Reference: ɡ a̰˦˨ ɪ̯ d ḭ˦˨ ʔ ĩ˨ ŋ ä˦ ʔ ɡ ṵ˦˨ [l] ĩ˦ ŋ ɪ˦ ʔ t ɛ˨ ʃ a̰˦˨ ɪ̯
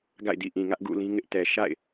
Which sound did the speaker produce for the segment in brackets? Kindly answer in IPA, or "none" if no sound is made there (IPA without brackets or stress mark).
l